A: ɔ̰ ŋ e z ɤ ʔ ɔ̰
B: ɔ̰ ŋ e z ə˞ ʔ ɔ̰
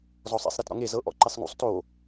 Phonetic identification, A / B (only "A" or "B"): A